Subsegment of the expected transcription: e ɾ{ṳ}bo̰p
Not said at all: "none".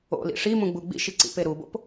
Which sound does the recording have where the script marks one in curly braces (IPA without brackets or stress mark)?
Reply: u